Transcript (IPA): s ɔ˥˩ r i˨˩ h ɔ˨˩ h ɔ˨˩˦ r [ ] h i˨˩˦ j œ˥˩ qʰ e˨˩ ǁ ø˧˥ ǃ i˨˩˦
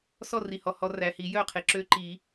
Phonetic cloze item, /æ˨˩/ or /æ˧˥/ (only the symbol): æ˨˩